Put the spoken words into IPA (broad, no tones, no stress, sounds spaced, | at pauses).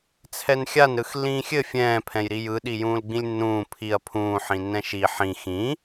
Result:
t͡sʰ ɛ n xʲ a n ɾ ɯ x lː ĩː xʲ ɘ fʲ ɛ̃ː pʰ ɛ̃ j ɾ i j ɯ ɗ i j ũː l ɡ͡b ĩ lʲ nː ũː pʰ i ɐ̯ pʰ ũː ħ ĩ nː ɛ̃ ʃ i ħ ĩ x ĩ